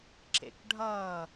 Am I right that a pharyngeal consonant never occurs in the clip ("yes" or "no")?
yes